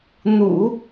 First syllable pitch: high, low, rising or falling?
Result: low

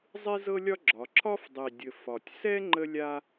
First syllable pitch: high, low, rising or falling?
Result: high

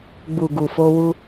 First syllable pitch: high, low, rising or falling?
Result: low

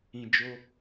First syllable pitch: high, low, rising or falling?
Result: low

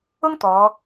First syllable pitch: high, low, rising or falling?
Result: high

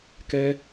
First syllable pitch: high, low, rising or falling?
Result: high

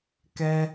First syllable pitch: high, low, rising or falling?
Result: high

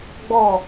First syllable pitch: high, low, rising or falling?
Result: falling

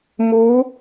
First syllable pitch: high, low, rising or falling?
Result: rising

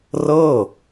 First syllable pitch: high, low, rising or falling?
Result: falling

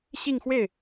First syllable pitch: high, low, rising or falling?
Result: falling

